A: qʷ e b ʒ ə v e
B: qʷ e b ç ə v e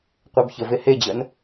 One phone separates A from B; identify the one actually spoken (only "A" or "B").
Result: B